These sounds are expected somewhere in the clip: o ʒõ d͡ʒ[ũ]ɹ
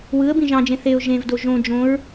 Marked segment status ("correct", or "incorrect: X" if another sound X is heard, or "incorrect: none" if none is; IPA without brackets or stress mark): incorrect: õ